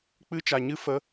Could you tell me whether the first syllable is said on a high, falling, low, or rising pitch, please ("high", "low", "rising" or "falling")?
high